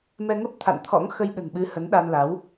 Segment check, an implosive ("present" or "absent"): present